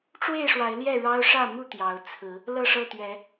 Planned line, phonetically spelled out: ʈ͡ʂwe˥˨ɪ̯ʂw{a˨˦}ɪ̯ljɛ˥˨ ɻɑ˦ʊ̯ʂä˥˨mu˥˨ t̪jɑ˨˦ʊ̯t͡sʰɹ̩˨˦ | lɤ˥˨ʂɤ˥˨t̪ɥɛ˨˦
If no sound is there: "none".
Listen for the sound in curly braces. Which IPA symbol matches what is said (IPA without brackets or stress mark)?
a˨˦